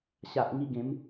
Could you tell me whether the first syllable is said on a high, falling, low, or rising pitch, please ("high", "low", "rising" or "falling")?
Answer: low